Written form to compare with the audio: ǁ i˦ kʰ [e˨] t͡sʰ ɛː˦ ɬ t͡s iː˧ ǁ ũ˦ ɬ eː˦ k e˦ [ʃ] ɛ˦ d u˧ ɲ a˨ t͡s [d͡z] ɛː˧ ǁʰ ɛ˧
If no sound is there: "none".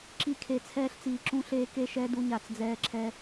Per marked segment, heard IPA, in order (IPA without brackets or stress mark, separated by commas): e˧, ʃ, d͡z